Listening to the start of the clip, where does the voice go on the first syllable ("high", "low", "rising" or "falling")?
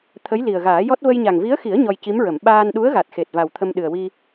rising